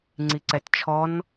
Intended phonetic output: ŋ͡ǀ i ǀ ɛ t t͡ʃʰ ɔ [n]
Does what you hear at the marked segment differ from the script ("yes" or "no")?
no